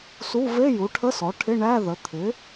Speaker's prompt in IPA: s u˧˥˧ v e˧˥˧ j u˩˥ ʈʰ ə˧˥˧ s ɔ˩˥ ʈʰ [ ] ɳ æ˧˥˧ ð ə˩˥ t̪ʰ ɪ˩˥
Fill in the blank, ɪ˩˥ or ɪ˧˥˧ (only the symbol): ɪ˧˥˧